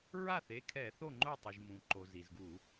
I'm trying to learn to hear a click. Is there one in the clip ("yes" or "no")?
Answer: yes